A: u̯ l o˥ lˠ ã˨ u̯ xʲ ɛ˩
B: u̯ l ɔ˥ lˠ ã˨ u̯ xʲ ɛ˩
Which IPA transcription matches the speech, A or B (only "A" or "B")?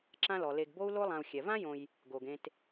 A